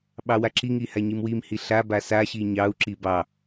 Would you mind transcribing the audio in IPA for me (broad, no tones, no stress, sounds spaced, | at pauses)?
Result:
ɓ ɑ w a ǁ i ŋ i h a ɲ i m w i m h i ɬ a b a s a ɕ i ɲ ɑ u̯ ǁ i b ɑ